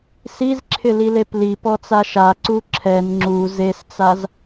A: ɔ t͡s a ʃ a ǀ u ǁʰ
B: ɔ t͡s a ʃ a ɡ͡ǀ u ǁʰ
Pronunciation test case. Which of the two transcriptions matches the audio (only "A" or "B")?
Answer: A